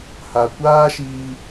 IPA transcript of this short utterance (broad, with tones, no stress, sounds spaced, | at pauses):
h a˨ kʷ aː˦ ʃ iː˧